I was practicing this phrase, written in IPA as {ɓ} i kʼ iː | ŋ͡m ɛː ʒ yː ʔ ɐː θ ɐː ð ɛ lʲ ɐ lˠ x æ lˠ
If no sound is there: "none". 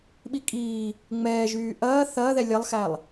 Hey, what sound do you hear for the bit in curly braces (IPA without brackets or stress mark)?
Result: ɓ